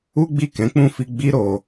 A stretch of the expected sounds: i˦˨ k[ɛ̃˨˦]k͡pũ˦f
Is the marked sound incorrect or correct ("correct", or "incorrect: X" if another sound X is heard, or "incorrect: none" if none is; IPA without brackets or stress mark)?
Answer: correct